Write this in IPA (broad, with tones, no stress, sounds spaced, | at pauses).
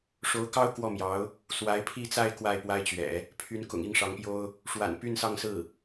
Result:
ʂ o˧˥ ʊ̯ k ɑ˥ ʊ̯ k w ɔ˥˩ m j ɑ˧˥ ʊ̯ | s w a˧˥ ɪ̯ pʰ i˥˧ t͡s a˥˧ ɪ̯ k w a˥˩ ɪ̯ p w a˥ ɪ̯ t͡ɕ ɥ ɛ̰˨˩˦ | pʰ y˧˥ n k ʊ̰˨˩ ŋ i˥˩ ŋ ʂ ɑ˧˥ ŋ p j o˥ ʊ̯ | ʂ w a̰˨˩ n p y˥˧ n s ɑ˥˧ ŋ s ɹ̩˥˩